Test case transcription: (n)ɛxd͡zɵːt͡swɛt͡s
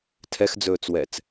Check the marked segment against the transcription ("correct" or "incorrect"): incorrect